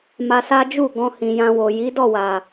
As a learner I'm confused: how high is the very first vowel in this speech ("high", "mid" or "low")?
low